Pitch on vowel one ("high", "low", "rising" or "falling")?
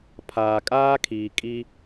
low